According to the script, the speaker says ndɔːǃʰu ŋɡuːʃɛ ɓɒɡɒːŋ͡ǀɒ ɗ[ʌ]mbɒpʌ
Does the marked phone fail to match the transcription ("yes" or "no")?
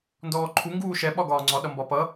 no